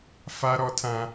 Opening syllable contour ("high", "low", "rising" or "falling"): high